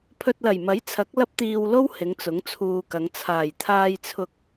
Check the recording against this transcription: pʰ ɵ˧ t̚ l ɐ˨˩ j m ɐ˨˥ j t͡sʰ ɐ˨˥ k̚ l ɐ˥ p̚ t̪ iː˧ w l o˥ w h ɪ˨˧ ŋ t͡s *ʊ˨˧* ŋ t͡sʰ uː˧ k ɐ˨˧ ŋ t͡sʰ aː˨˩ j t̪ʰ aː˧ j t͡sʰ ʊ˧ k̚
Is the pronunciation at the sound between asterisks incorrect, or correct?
incorrect